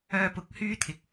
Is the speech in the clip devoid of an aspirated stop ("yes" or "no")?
no